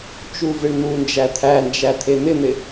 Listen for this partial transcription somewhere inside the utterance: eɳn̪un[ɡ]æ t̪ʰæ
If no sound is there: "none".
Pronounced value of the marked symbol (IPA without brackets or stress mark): d͡ʒ